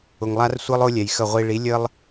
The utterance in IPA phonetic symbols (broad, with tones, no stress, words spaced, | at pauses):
ʊ˨ŋlˠa˦r sʷɯ˦lˠʊ˦lʲɛ˨jxə˦˨ ʁʷi˨ɭi˨˦ lʲə˦lˠ